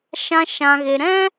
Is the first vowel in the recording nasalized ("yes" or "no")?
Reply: yes